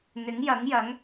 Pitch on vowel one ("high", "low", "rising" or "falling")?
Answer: rising